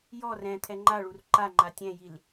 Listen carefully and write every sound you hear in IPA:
jɔr ɛ̃ t̪ʰɛŋ͡ǃaɭur ǃaŋ͡ǃa tʲɛ̃jil

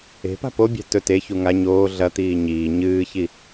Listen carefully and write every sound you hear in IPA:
e̤pa̤ pobʲa̤ tɵ te çuŋa ɲoː ɮɐ t̪iːɲiː ɲɨːçi

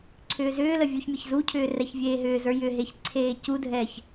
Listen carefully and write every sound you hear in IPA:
ǀʰʏːzʏːlə vʲuçmʲʌçzucʰʏː rɛçvʲeːɦʏːzə˞ jʏɦeç ǀʰeːcudʱɛːç

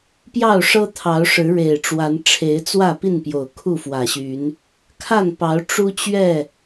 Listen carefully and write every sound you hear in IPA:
pjɑ˥˨ʊ̯ʂɤ˦t̪ʰɑ˨˦ʊ̯ ʂɻ̩˨˦ɻe˨˩ɪ̯ʈ͡ʂwa˨˦nʈ͡ʂʰe˨˦ɪ̯ t͡swä˥˨pi˥˨n pjo˨˩ʊ̯kʰu˥˨fwä˨˩ɕy˨˦n | kʰa˥˨npɑ˨˦ʊ̯ ʈ͡ʂu˦t͡ɕɥɛ˥˨

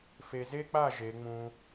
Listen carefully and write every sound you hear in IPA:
fe˨ze˦k͡pa˦˨ ʒe˨˦ŋ͡mũ˦

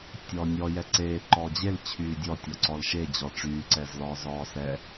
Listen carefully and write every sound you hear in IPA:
tʲɔːnʲɔ jɛǀeː ǃɔd͡ʑel t͡ɕʰyːdʲɔ tʲɔǀɔlʃe d͡ʑɔʈ͡ʂyː ǀɛzlɔːzɔːsɛ

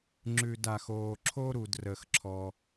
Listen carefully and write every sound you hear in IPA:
ŋ͡ǁʉ˧da˧xoː˧ǁʰo˥ ɾu˧drə˧xǁʰɔ˧

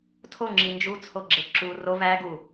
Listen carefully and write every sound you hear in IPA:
tʰoŋ͡ǁi nd͡ʒut͡sʰoɡ͡ǁe ǁu ro væ ɡu

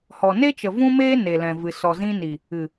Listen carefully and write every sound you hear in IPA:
hɔ˨ne˦t͡ʃə˨ vũ˦meː˦ ne˨ lɛ̃˨ vɨ˨ sɔ˨zĩ˧ ni˨ | ɨ˨

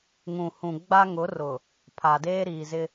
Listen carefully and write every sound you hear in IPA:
ŋũ˨hũ˨ ɡ͡ba˦ŋʊ˨˦rʊ˨ | pʰa˨deː˦ɾiː˨zɪ˦

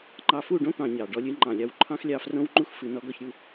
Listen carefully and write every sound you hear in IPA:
ŋ͡ǃɑ˧fu˦˨ɖõ˦ t̪ɑ̃˧ɲɑ˨ ɖɔ˧lʲɨ˧ŋ͡ǃɑ̃˨lʲɑ˧w ǃʰɑ̃˦xlʲɑ˧frõ˦wŋ͡ǃu˦x fɨ˧nɔ˦ɡɔ˦çɾʲu˦

